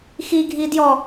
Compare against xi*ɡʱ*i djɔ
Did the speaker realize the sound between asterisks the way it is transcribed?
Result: yes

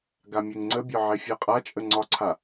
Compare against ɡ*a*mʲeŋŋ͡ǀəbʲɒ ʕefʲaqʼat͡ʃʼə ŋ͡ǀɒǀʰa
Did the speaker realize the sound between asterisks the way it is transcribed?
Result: yes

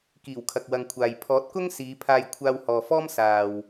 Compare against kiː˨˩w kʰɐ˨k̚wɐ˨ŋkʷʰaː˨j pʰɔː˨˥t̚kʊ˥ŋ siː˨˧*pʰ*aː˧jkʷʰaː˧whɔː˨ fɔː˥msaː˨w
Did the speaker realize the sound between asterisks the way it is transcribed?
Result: yes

